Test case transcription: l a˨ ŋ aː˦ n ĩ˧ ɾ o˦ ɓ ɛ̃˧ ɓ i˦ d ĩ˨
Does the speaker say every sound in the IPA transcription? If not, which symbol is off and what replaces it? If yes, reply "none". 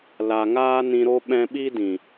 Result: none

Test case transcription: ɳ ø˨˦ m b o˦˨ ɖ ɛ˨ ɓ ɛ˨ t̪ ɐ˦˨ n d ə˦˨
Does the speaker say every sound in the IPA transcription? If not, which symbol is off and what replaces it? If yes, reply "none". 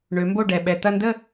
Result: none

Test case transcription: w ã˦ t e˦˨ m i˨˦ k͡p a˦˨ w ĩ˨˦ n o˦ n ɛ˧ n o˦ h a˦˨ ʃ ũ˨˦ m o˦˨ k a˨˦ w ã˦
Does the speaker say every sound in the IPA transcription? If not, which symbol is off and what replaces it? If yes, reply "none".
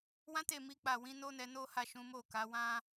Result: none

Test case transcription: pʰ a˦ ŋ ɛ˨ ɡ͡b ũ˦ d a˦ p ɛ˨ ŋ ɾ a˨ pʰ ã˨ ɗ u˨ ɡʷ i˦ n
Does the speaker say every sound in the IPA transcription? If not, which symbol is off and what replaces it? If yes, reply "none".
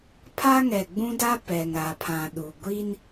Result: none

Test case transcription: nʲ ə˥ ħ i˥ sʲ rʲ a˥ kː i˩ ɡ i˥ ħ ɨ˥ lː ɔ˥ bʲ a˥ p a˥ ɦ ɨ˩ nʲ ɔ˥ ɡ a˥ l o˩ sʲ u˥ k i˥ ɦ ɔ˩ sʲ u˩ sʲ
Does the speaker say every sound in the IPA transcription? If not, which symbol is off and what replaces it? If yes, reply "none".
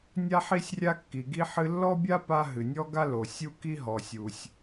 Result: ə˥ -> a˥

